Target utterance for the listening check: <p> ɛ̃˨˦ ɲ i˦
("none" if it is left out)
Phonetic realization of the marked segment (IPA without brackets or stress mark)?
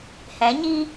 h